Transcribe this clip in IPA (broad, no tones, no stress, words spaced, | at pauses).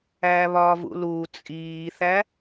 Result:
æːβɒːvṵluː t͡sʼiːθæ